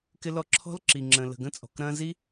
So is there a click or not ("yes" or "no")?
yes